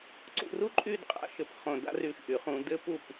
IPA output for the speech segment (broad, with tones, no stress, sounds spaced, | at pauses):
ǀ ṵ˧ r u˥ ǃʼ y˥˧ d qʼ a̰˥ ʃ ɘ˧ p χ õ˧ d a̰˥ r y˧ ʃ ʔ y˩˧ χ ũ˧ d ɘ˥ p u˥˧ p